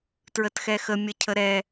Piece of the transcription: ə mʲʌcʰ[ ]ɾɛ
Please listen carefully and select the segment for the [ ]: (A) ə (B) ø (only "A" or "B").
A